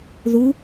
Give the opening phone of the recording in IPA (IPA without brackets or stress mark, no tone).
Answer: ð